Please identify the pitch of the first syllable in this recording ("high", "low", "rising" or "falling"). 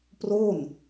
falling